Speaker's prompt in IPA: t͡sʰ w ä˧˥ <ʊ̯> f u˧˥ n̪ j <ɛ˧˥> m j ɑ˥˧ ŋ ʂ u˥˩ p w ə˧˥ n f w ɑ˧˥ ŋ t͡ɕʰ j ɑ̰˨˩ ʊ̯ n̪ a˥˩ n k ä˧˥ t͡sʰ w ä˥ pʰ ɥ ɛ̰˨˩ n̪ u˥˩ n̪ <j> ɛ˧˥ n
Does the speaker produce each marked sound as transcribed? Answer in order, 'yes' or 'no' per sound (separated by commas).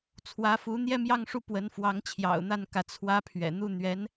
no, no, no